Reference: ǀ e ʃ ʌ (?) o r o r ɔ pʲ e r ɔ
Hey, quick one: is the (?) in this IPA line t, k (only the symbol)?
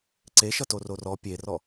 t